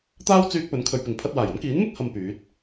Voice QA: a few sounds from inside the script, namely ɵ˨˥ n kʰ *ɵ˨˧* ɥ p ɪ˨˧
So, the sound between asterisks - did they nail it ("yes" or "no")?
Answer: yes